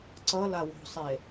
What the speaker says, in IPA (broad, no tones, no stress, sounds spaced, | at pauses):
ǀ ʌ l a w o̤ sˤ e